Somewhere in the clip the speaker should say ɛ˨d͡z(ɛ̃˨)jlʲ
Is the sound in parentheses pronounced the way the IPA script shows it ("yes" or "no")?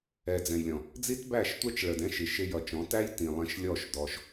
yes